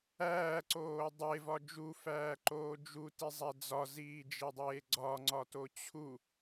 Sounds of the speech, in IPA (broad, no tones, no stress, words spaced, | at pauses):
æːǀoː dˤevɒ d͡ʒufæːǃoː d͡ʒutizˤæ d͡zɒziːd͡ʒedˤeː ɡ͡ǀɒŋ͡ǀɒto t͡ɕʰu